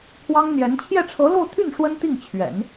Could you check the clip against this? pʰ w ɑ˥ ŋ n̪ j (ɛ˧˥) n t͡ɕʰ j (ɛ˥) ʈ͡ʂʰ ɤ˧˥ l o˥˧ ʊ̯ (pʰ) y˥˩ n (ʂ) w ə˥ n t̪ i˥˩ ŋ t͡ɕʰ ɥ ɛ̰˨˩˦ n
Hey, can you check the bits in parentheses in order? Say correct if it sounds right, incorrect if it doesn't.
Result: correct, incorrect: ɛ˥˩, incorrect: t̪ʰ, correct

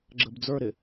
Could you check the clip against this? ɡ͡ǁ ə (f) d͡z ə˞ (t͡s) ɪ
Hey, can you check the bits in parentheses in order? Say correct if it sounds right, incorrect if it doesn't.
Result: incorrect: b, incorrect: ɾ

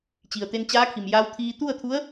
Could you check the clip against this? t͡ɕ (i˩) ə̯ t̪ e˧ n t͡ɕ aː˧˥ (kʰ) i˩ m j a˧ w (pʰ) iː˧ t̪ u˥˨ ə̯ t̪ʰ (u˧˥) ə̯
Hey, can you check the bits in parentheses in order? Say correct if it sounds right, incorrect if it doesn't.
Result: correct, correct, incorrect: t̪ʰ, correct

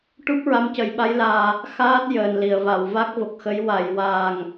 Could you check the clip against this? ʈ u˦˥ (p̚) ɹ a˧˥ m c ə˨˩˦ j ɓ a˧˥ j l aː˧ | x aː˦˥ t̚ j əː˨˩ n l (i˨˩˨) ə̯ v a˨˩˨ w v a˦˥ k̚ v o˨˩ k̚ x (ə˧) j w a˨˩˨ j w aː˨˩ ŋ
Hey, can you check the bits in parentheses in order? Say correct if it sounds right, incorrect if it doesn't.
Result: correct, correct, incorrect: ə˧˥

